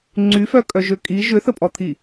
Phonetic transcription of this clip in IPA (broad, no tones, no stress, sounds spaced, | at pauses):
ŋ͡ǀ y f œ kʼ œ ʒ ø kʼ i ʒ ʏ θ ə pʼ ɔ t̪ʰ i